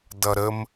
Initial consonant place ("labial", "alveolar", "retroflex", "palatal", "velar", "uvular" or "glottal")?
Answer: alveolar